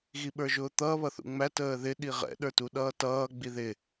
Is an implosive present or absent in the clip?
present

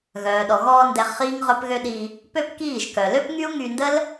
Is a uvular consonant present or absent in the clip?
present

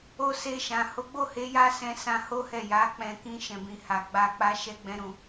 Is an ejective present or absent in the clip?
absent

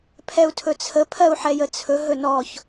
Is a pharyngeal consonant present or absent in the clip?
present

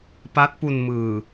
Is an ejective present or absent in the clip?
absent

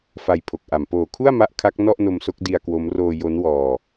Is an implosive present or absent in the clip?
absent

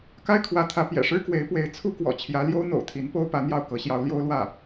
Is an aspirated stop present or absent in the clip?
present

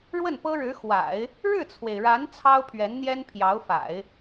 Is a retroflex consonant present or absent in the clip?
present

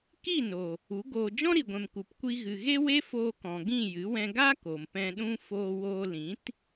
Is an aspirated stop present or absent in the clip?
absent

